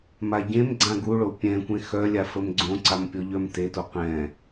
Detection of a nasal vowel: present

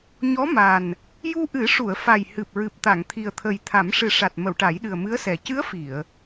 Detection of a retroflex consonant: present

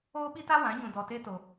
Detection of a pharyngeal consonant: absent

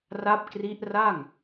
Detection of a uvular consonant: absent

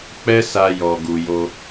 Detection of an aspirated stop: absent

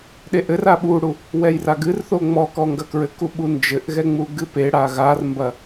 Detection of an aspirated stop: absent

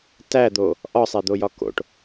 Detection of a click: absent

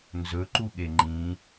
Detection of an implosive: present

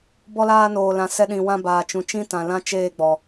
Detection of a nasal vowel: present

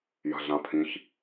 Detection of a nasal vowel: present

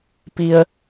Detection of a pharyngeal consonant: absent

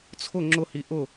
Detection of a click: present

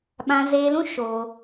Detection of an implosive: present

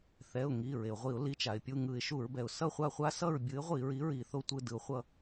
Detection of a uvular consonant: present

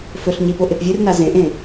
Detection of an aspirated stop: absent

